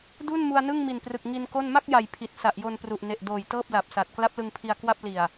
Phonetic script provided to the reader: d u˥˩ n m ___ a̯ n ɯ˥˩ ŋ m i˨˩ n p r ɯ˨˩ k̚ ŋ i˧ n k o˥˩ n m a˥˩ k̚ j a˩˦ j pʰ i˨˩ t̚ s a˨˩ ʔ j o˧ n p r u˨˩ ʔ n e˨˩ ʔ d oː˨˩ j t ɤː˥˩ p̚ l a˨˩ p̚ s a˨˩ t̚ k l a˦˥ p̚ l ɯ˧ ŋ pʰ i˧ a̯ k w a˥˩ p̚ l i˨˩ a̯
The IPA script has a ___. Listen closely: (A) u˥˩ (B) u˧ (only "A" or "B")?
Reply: B